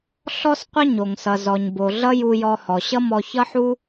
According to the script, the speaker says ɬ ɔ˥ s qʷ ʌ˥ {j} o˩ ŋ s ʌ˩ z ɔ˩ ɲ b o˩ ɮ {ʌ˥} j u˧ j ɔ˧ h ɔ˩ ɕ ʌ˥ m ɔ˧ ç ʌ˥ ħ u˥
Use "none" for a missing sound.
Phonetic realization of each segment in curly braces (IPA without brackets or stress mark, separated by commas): ɲ, ʌ˥